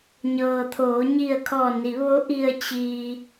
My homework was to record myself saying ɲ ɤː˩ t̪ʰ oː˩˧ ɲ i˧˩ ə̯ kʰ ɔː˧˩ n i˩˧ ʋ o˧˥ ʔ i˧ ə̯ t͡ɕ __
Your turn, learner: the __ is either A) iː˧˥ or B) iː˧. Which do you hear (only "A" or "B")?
B